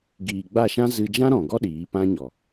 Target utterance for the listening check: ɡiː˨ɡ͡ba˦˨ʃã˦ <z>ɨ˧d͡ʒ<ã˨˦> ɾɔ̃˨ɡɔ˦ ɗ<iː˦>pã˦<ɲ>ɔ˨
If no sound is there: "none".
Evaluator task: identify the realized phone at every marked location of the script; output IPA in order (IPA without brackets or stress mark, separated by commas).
z, ã˦, iː˨˦, ɲ